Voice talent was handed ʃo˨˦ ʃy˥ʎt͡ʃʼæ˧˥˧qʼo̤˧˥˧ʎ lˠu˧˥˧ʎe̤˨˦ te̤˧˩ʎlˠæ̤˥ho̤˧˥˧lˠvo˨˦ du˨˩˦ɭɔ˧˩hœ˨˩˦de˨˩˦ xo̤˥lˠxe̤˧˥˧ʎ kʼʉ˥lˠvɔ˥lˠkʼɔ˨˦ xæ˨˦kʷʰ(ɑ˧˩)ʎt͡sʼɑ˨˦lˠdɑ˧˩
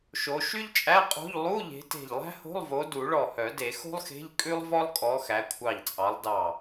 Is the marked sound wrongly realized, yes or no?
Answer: no